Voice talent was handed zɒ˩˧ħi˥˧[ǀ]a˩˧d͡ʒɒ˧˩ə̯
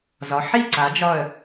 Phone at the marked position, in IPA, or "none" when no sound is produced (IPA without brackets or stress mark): ǀ